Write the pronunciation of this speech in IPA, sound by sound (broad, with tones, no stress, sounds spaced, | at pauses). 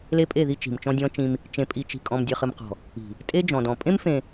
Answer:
l e˦ pʼ e˦˨ ð i˦ t͡ʃ i̤˨ m t͡ʃ ɔ̃˦ dʲ ɔ̃˦ t͡ʃ ĩ˦ m | t͡ʃ ẽ˨ pʼ i˨ t͡ʃ i̤˨ kʼ ɔ̃˨ m dʲ ɨ˨ χ ɨ˨ m q ɔ̤˨ | i̤˨ | tʼ e˦ d͡ʒ ɔ̃˨ d ɔ̃˨ pʼ ẽ˦ m f ẽ˨